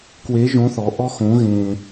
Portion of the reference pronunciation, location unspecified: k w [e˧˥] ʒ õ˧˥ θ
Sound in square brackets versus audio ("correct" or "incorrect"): correct